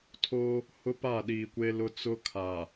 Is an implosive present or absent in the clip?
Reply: present